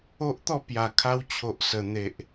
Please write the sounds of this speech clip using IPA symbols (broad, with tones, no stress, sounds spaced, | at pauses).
o˦ ʔ t̪ ɔ˥˧ p j a˨˩ kʰ a˧ w t͡ɕʰ o˨ ʔ s ə˨˩ n̪ e˨ ʔ